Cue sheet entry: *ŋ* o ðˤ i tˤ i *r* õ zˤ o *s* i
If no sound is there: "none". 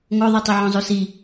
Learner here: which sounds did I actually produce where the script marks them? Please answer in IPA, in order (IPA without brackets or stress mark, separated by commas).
ŋ, ʕ, s